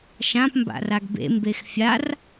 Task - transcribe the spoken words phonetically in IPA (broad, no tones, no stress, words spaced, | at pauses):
ʃãp mba̰raɡbḛ mbexfʲar